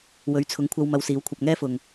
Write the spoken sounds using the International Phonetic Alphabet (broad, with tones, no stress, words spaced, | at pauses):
wɵ˨˥ɥt͡sʰʊ˨˥ŋkʷʰɐ˧w mɐ˧wsiː˨˥wkʷʰɐ˧p̚ ŋɛː˥fʊ˨ŋ